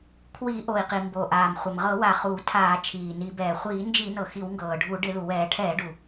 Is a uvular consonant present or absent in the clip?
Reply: present